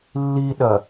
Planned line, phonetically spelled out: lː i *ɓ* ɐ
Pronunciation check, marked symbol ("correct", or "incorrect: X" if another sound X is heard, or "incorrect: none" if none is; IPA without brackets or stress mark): incorrect: ɗ